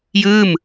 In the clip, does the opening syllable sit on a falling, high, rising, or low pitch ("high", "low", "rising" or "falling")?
falling